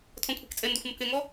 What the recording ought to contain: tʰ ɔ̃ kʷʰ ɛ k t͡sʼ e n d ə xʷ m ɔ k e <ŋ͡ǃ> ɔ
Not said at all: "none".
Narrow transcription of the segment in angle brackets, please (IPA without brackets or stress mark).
ŋ